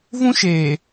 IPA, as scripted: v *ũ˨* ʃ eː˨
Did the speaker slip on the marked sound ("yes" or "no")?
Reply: yes